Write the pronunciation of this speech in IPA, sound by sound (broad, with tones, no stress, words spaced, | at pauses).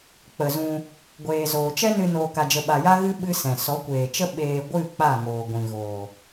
k͡pə˨zũ˧ | ɡʷeː˨zoː˨t͡ʃɛ˦nɨ˧ noː˧ka˧d͡ʒə˧ɓa˧ ja˦ɣɨ˦ ɓɨ˦sɛ̃˨ sɔ˨˦kʷeː˨t͡ʃə˦ ɓeː˧ ɡʷɨ˦˨ k͡pa˦˨ŋoː˨ ɡʷĩ˨ɣoː˨